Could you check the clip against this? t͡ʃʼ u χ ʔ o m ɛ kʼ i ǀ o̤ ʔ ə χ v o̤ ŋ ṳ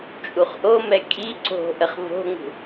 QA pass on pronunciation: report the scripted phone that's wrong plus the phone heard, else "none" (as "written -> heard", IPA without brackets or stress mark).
none